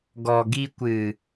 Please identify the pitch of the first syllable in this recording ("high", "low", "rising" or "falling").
low